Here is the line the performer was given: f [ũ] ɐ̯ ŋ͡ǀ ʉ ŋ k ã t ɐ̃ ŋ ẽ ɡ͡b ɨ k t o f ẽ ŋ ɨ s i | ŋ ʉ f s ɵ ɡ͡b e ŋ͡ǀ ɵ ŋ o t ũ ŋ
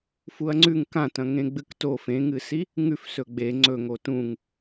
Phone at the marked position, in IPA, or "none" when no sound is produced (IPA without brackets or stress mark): u